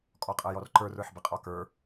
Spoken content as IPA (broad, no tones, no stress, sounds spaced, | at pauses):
kʼ ɔ qʼ ɤ j ɔ r ǃ ə˞ r ə˞ ħ b ə qʼ ɔ k ə˞